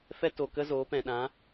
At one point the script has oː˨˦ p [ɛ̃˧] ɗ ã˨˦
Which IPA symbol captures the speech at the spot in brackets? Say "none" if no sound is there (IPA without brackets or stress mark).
ɛ̃˨